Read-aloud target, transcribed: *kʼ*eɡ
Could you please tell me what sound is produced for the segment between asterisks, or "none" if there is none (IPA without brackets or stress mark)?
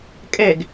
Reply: kʼ